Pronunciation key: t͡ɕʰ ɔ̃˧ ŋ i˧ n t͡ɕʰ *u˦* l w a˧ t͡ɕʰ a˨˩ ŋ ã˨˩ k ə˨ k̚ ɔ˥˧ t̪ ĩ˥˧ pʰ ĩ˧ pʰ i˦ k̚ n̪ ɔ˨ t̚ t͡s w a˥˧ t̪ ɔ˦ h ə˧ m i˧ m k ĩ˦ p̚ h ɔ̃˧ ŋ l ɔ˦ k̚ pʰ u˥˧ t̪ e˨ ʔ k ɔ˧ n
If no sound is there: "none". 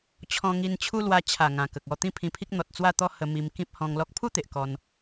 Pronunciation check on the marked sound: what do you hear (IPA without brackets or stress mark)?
u˦